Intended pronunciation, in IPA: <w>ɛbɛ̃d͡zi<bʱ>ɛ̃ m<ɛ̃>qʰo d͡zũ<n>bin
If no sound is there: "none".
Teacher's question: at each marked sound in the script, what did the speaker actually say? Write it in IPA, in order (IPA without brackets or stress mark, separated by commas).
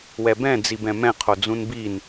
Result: w, b, ɛ̃, n